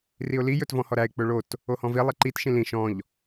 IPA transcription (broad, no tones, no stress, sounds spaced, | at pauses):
r i ʊ̯ l i j ɵ t v ɔ̃ h ɔ ɾ æ ɪ̯ k͡p ɵ ɭ o t | o h ɔ̃ v i lˠ e ǃ i t ʃ ĩ l ĩ ʃ ɔ̃ ʎ